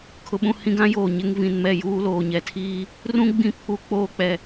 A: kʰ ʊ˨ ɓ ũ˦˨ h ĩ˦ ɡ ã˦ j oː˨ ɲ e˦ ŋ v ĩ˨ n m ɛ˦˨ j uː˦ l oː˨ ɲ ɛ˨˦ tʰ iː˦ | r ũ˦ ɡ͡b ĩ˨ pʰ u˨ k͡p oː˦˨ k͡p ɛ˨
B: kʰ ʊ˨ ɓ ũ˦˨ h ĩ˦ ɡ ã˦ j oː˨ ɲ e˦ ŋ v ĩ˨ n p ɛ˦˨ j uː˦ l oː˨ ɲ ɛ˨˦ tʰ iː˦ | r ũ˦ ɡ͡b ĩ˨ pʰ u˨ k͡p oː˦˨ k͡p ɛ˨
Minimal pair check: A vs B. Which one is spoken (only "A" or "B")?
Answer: A